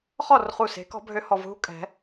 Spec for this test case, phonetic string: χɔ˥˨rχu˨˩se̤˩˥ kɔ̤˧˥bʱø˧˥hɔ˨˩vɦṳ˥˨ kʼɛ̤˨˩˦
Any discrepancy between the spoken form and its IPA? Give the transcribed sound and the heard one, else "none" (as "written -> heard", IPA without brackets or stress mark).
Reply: none